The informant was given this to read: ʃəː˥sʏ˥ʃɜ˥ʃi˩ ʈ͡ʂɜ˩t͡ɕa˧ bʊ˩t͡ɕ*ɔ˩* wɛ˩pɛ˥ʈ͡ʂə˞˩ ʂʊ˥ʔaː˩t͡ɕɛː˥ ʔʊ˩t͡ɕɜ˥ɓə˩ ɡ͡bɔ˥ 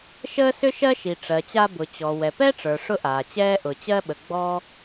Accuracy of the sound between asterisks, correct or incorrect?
correct